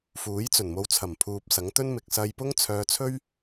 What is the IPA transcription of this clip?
f uː˨˥ j t͡s ɵ˨˩ n m o˨˧ w t͡sʰ ɐ˨˩ m pʰ uː˨ p̚ s ɐ˨˥ ŋ t̪ ɵ˥ n m ɪ˨ k̚ s ɐ˧ j p ʊ˥ ŋ t͡sʰ œː˧ t͡sʰ ɵ˥ ɥ

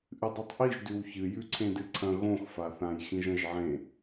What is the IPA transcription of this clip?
ʔ ɨ dˤ u tˤ ʔ i ʒ d ʉ w ç ɨ j ʉ ǀʰ ẽ d ɨ ǀʰ ɐ̃ ɣ õ x f a θ ã j x ĩ ʒ ɐ̃ ʒ ʕ ẽ

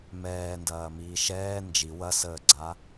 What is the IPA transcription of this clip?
m ɛː n d ɐː m iː ʃ ɛː n d͡ʒ i w ɐ s əː ɡ͡ǀ a

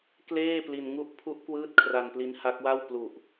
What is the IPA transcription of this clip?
k l eː˥˩ p l i˧ n ŋ u˥˩ ʔ pʰ u˦˥ ʔ k w ɯː˦˥ t̚ kʰ r a˧ n p l i˦˥ n h a˦˥ k̚ w a˥˩ w p l u˨˩ ʔ

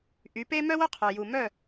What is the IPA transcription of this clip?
ʔ y˩˥ p e˥ m œ˥ w o˥ qʰ œ˩ j u˩ m œ˥˩

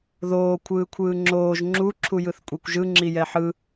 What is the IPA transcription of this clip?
ð oː kʷʰ ɯː kʷʰ ɯː ŋ͡ǁ oː ʒ ŋ͡ǁ u ǁʰ u j ɯ θ kʷʼ e kʷ ʒ ɯ ŋ͡ǁ i j ɛ ħ ɯ

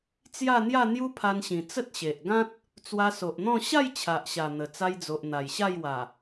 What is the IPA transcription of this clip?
t͡s j a˥˧ n̪ j a˥˧ n̪ j u˦ pʰ a˧ n ɕ ĩ˨˩ t͡s ə˦ t̚ ɕ e˨ ʔ ɡ ã˦ t̚ | t͡s w a˧ s o˨ ʔ n̪ ɔ̃˥˧ ɕ a˥˧ j t͡ɕʰ a˨ ʔ ɕ a˨˩ n̪ ə˨˩ t͡s a˧ j d͡z o˨ ʔ n̪ a˨˩ j ɕ a˥˧ j w a˨˩

